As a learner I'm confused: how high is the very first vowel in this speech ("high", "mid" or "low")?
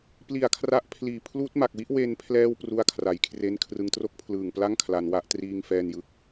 high